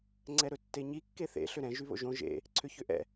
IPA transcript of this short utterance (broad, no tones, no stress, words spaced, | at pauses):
ŋ͡ǀɛɾɵtːeɲi kːeθḛ ɬʏɾɛ̃ ʒyβo̰ʒõ ʒḛ | ǀʰʏçʏʔɛ̰